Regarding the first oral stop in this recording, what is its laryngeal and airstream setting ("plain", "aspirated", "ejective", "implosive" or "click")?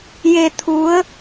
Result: aspirated